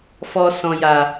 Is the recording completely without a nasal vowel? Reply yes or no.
no